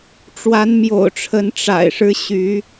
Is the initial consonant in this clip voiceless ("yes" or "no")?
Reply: yes